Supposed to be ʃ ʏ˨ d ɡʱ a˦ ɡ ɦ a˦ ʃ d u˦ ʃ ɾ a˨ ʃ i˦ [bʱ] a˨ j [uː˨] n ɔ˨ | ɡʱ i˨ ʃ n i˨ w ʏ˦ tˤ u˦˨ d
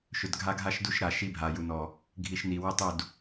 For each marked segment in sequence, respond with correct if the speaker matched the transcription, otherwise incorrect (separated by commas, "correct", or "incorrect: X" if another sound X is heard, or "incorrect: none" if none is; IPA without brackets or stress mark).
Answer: correct, incorrect: u˨